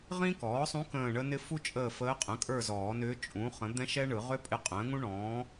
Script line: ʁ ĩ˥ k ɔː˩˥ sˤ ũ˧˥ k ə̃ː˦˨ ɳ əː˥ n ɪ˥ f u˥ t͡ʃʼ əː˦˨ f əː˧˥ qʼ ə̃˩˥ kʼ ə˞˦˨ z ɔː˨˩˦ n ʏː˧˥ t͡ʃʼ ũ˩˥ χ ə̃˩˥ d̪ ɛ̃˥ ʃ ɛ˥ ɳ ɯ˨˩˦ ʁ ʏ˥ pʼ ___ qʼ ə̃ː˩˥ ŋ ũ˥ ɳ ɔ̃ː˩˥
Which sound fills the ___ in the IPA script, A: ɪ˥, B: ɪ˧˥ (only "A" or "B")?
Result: B